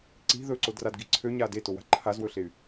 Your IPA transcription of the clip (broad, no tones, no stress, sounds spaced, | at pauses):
ǀ i̤ ð ɵ ǀ o d r a d ɡ i ǀʰ ø ɲ a d e t o w a̤ ǃʰ a z w ɵ ɬ e y̯